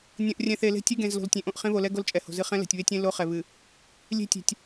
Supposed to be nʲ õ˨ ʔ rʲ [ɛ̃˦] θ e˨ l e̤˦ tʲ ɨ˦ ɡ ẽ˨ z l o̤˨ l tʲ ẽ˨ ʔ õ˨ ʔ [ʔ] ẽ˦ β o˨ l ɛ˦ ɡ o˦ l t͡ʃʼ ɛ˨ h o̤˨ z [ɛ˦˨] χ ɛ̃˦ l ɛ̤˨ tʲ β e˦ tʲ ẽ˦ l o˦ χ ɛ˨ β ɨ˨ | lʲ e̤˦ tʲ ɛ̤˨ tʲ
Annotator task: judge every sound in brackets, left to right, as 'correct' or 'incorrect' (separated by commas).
incorrect, incorrect, incorrect